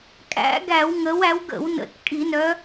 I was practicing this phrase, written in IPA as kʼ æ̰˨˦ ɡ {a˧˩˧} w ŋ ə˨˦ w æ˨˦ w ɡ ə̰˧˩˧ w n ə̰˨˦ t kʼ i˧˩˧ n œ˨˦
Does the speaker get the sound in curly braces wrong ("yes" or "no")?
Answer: yes